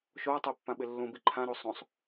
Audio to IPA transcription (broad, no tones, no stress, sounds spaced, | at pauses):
ʃ o ɐ̯ tˤ ɛ pː ã ɓ ɪ lː ũ b i ǃʰ ã ɾ o sˤ õ sˤ